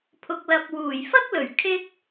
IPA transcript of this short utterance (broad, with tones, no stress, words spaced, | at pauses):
pʰʊ˨k̚lɐ˨p̚ wuː˨˩jfɐ˥k̚lɵ˨˩ɥ kʰɪ˥k̚